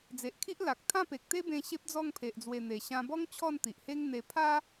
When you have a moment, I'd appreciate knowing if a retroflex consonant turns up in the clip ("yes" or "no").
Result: no